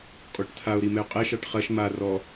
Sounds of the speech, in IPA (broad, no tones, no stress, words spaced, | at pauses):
kʼɔʈtʰao̯ ɾimɛo̯qʼɛ ʃɑʈχɐʃ ma rɔ